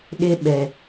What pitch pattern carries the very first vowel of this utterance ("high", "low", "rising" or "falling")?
high